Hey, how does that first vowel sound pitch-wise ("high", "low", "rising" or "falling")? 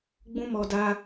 high